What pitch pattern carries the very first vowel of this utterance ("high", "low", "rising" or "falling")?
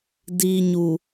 low